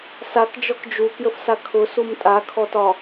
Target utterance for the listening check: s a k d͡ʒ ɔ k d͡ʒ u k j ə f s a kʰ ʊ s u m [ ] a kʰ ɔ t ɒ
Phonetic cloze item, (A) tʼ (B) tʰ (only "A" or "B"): A